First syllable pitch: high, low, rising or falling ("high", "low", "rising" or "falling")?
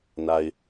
low